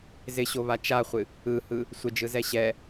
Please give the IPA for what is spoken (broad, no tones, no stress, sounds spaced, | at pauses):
z ɪ ɕ o β a t͡ʃ a χʷ ɨ | ɯ h ɯ | sʷ ɪ d͡ʒ ɯ z ɛ ɕ ɛ